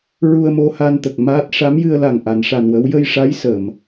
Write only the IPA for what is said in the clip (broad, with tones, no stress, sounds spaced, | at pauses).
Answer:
ɹ u˧ ə̯ m o˧ h a˧ n t̪ ə˨˩ k̚ m aː˦˥ t̚ ʂ a˧˥ m j ɨ˧ ə̯ l a˨˩ ŋ ʔ a˨˩˨ n ʂ a˨˩ n w ə˧˥ w j ə˧ j ʂ a˧˥ j s ə˨˩˨ m